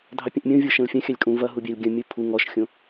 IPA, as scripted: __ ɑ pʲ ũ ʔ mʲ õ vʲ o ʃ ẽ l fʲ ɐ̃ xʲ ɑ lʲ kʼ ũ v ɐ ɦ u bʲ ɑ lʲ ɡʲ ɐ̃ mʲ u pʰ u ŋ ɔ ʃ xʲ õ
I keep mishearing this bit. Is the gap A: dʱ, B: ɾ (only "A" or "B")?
A